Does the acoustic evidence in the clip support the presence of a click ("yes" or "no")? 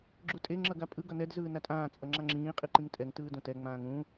yes